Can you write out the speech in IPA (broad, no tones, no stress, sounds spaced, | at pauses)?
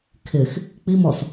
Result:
kʰ ɪ x | k͡p i m ɔ s